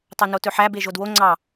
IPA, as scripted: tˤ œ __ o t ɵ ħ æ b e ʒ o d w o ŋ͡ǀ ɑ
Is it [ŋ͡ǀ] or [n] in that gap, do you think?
n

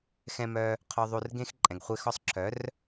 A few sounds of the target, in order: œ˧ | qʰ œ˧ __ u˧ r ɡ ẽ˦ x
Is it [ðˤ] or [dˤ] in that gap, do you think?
ðˤ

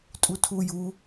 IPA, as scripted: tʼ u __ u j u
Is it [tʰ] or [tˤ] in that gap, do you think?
tʰ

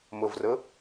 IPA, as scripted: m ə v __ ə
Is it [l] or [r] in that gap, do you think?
r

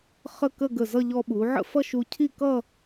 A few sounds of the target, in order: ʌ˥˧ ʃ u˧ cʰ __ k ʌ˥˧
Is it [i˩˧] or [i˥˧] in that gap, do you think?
i˥˧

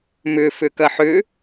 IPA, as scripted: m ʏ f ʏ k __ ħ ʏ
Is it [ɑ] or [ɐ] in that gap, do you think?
ɐ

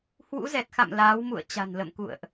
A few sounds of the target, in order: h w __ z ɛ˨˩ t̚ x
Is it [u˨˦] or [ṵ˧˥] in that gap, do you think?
ṵ˧˥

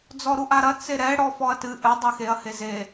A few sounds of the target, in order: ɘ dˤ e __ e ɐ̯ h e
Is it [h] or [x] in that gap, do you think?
x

